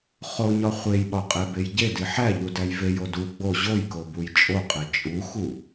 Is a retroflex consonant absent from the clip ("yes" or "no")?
yes